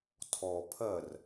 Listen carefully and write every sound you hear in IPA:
tʰ ɔ pʰ ɜ r

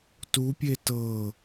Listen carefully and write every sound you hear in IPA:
t u pʲ e t ɤ

